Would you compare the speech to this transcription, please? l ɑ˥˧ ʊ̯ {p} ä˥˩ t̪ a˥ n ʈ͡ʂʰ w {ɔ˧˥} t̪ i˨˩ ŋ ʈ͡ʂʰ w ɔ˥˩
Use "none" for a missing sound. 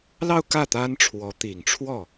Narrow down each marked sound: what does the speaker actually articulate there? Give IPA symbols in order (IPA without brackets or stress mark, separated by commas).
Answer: k, ɔ˧˥